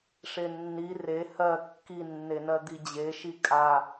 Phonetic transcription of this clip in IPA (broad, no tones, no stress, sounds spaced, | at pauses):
ʂ e nː i r e h ɜ kː i nː e n ɜ d̪ i d͡ʑ e ʃ i kʼ a